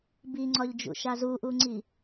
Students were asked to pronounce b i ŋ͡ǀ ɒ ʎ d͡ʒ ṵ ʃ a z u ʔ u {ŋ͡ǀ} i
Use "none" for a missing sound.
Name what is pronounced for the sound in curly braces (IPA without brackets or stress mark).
ŋ͡ǀ